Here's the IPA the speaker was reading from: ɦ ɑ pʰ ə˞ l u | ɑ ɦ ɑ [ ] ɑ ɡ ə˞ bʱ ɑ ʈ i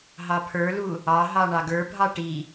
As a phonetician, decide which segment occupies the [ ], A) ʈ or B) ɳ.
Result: B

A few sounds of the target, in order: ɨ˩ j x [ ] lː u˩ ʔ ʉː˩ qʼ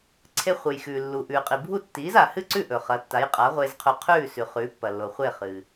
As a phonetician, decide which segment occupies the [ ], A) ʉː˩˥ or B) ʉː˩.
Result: B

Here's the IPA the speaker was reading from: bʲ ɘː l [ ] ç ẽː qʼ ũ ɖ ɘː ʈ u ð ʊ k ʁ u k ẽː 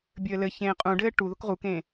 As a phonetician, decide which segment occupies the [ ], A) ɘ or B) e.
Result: A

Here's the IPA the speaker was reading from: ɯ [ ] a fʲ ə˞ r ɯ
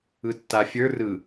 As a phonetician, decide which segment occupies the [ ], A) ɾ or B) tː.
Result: B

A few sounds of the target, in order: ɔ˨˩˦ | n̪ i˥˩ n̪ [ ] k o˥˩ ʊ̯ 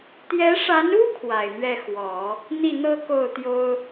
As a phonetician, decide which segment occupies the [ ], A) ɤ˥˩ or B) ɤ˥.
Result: B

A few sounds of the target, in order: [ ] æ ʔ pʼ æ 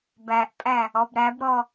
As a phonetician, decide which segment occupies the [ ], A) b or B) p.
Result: A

